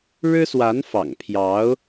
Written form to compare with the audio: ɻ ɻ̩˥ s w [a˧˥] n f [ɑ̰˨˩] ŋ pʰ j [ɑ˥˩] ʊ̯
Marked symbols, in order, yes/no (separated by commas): yes, yes, no